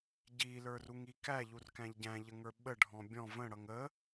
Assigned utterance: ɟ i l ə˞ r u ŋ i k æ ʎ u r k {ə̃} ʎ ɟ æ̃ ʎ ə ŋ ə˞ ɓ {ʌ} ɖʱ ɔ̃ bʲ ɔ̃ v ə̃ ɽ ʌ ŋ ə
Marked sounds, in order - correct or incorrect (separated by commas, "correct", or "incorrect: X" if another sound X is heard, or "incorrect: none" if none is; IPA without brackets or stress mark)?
incorrect: æ̃, incorrect: ə